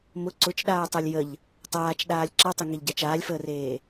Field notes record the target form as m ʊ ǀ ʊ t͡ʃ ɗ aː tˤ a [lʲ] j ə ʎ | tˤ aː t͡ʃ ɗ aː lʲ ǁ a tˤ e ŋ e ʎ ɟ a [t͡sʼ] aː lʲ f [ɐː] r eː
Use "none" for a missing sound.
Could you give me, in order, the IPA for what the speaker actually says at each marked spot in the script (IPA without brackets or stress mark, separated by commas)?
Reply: lʲ, t͡ʃ, əː